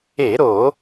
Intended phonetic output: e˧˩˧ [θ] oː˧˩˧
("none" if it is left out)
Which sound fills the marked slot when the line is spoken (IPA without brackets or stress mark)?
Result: ɾ